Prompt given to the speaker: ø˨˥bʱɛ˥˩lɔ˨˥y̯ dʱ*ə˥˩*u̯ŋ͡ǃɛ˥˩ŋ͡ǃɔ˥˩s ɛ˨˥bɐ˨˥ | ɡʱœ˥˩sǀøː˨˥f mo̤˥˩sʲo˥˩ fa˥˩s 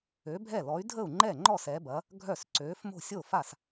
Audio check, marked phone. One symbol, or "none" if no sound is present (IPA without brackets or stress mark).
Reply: ə˥˩